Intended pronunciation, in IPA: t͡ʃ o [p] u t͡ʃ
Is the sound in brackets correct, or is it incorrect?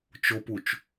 correct